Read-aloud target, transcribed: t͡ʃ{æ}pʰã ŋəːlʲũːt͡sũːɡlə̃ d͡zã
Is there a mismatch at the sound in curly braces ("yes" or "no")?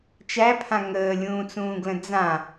no